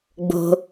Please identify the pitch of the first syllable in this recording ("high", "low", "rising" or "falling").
low